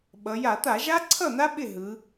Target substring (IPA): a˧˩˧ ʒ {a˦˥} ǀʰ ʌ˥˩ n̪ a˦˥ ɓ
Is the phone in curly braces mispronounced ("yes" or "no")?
no